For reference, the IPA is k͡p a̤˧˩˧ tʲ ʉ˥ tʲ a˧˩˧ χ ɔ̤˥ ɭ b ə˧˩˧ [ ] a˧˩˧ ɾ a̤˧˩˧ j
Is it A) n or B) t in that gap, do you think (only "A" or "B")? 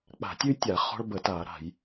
B